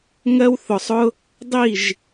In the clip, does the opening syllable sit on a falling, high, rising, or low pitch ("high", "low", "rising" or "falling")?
high